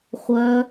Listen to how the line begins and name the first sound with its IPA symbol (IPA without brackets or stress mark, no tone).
χʷ